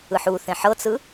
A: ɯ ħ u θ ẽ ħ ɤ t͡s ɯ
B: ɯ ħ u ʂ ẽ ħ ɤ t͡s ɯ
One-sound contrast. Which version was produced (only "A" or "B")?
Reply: A